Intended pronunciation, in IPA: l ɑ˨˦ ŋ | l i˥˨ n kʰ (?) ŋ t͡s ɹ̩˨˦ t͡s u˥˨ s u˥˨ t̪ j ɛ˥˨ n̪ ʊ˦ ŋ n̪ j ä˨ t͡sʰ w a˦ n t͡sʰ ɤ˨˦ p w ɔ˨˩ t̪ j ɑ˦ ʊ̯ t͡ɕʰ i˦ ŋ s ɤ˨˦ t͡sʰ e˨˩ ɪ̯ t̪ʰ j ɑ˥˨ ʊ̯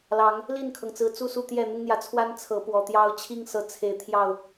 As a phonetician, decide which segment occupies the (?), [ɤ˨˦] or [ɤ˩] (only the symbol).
ɤ˩